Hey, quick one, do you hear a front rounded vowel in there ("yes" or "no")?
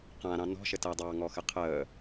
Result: no